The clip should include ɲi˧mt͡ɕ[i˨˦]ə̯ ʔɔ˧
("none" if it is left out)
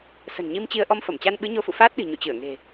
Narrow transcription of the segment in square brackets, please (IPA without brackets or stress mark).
i˧